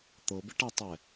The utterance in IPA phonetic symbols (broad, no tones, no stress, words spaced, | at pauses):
t̪ɤbɪʈatˤɛ